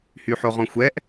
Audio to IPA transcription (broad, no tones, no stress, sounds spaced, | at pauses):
h y ħ o ʁ ɔ̃ xʷ ɛ ʔ